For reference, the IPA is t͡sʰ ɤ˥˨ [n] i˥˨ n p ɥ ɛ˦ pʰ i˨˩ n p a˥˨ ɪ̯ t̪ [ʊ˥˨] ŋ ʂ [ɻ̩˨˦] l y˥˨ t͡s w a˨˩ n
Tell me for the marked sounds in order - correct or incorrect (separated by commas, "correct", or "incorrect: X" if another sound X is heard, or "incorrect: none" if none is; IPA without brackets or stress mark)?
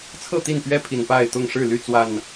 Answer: incorrect: t̪, correct, incorrect: ɻ̩˥˨